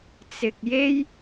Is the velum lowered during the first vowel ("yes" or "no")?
no